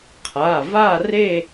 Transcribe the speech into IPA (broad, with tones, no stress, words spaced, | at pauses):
qʰa˩˧˩va˥˧re˥˧